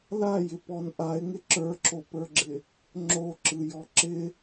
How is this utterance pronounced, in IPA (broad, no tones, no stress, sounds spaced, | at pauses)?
l a j ɪ p ɔ n ʔ a ɪ̯ ŋ ɪ ǁ ə˞ ǁ o p ə˞ ɡ͡ǁ ɪ | ŋ͡ǁ o ǁ ɯ j ɔ ǁ ɪ